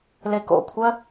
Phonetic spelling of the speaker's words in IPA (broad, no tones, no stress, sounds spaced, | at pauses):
l e k o̰ kʷʰ ɜ